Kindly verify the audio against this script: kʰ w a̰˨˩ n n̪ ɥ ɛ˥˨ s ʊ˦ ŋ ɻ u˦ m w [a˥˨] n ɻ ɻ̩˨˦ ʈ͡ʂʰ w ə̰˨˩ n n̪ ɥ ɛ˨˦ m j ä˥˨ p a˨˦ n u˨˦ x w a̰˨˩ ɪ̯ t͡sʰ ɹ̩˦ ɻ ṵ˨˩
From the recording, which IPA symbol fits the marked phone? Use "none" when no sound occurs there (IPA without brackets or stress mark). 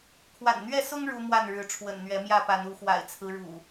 a˥˨